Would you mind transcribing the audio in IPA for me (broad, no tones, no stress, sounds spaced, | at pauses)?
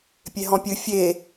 pʲ e ɦ ɔ̃ pʲ ɨ fʲ e